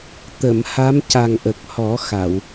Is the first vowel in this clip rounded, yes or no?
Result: no